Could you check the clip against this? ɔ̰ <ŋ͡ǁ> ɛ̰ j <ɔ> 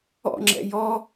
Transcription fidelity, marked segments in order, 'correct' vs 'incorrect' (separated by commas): correct, correct